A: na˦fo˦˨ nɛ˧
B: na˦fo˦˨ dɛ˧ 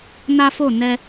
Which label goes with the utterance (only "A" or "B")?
A